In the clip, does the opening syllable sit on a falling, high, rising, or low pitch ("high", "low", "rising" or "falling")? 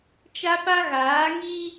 high